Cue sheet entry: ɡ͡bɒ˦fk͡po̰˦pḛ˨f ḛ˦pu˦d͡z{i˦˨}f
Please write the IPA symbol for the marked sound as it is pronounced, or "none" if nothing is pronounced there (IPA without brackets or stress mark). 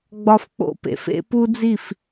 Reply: i˦˨